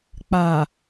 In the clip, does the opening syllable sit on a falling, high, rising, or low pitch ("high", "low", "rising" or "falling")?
low